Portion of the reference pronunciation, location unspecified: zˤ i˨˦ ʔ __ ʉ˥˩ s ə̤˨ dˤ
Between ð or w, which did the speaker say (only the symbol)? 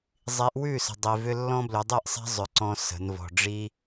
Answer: w